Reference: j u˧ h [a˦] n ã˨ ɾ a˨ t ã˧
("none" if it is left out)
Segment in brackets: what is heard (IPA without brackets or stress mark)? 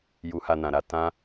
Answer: a˧